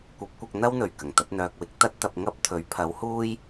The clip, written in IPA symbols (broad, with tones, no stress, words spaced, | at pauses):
kʷɐ˨˥p̚kʷɐ˧k̚ n̪ɐ˥wn̪ɵ˨˩ɥ kɐ˨˩ŋt̪ɐ˨˥t̚n̪œː˧k̚wɪ˨˥k̚ t̪ɐ˥t̚t̪ɐ˧p̚ŋɐ˥p̚t̪ʰɵ˨˥ɥ pʰɐ˨˥whuː˥j